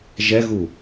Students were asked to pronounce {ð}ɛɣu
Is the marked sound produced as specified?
no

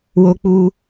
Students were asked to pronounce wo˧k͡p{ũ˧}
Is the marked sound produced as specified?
no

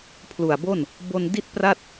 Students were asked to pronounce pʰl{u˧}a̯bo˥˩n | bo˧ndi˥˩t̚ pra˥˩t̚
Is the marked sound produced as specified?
no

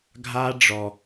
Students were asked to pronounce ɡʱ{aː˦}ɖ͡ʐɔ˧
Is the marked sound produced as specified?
yes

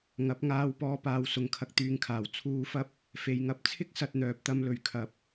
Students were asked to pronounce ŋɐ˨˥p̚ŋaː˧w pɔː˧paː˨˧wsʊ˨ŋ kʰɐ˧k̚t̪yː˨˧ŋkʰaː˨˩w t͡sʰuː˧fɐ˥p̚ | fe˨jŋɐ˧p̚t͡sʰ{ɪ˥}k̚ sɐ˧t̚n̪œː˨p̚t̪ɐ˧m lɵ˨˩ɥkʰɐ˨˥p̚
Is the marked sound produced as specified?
yes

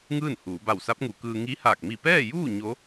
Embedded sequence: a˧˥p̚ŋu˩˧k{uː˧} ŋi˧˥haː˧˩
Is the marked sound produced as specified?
no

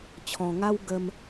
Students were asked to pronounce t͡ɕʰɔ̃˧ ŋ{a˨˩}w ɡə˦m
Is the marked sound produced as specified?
no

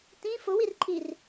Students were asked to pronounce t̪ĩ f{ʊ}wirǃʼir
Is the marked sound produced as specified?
yes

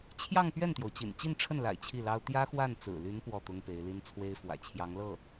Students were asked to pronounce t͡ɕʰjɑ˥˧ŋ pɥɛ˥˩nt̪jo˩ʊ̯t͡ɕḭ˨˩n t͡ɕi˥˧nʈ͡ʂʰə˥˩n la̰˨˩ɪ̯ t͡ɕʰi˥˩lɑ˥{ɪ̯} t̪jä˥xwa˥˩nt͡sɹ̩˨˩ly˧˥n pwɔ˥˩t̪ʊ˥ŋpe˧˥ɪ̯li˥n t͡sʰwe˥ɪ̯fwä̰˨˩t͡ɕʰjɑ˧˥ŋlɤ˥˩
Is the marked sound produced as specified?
no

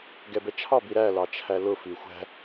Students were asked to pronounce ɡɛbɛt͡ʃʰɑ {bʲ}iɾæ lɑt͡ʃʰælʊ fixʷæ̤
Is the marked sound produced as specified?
no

